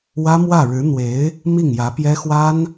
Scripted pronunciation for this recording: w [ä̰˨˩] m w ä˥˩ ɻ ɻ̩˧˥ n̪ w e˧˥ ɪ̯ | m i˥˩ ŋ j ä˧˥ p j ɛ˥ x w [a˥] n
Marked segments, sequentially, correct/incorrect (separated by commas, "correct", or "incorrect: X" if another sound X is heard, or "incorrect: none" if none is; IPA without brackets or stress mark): incorrect: ä˥, correct